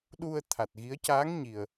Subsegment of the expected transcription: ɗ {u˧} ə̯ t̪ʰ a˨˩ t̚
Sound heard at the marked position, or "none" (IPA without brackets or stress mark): u˧